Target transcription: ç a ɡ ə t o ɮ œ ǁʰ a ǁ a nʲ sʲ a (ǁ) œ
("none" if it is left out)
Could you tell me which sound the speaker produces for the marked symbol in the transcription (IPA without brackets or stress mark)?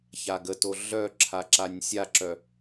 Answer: ǁ